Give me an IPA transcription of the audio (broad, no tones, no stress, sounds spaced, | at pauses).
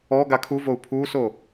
ɔ ɡ a kʰ u v o u̯ pʰ uː s o